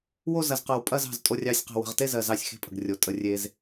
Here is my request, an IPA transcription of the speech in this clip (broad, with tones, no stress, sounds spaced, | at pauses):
w o˦˨ z ɐ˨ z q ɜ˨ w pʼ ɐ˦˨ z ɑ̤˦˨ z tʼ o˦˨ rʲ ɑ˦˨ sʲ q e̤˦˨ w ə̤˨ ʁ t e˦˨ z ɜ˨ z ɑ˦˨ sʲ x e̤˦˨ pʼ ə̤˨ ɡ rʲ o˨ tʼ ə˨ rʲ e˨ z